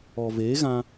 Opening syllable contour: low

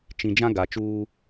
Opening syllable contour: low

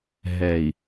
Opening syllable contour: low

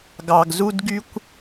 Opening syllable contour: low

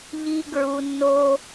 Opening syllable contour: high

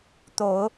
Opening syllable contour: low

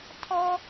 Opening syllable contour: high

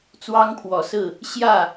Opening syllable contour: high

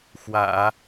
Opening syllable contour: low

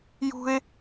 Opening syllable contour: high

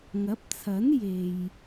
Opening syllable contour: rising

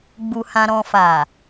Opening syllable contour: low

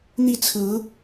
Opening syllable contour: falling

